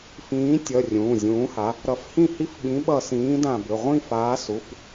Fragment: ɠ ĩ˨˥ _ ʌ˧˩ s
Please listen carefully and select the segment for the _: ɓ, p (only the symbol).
ɓ